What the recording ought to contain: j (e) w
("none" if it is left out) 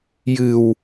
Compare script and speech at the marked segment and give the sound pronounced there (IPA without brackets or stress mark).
ɨ